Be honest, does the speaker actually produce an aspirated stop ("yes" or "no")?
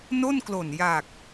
no